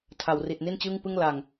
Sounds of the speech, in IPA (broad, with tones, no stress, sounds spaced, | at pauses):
tʰ a˩˦ w r i˨˩ t̚ n i˥˩ n t͡ɕ ɯː˥˩ ŋ p ɯ˥˩ ŋ l a˨˩ ŋ